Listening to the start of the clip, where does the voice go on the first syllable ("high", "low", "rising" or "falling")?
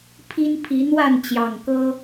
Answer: high